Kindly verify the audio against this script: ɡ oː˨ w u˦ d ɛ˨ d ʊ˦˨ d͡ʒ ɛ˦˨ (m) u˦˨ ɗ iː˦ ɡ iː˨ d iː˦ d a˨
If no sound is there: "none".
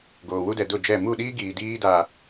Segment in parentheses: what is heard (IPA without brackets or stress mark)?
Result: m